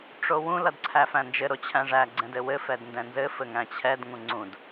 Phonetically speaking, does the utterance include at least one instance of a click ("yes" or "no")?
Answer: yes